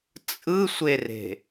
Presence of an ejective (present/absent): present